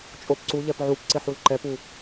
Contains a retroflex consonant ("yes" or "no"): no